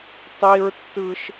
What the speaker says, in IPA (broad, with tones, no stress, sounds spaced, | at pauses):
tˤ i˦ ɹ tː ɯ˦ ʃ